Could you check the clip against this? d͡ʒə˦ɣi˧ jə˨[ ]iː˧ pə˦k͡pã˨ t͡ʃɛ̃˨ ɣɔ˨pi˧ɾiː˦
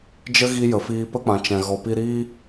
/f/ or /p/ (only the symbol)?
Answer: f